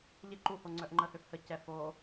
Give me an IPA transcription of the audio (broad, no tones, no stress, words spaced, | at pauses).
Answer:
ʎɪ ǃuhoŋ͡ǀœʔ ŋ͡ǃəhøf həcɛ fo